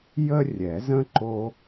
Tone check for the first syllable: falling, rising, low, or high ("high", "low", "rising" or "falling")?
high